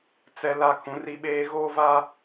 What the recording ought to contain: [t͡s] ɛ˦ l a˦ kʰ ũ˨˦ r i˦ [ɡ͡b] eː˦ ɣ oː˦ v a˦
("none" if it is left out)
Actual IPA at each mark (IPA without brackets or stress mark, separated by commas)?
t͡s, ɓ